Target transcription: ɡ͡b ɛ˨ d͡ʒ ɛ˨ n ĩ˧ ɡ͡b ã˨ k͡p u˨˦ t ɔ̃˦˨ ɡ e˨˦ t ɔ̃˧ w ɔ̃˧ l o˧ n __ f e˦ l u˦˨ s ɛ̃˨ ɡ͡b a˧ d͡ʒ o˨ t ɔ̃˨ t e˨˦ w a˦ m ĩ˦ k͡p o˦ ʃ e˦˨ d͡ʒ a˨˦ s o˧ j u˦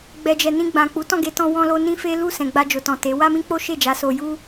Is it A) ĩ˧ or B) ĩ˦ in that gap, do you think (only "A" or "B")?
B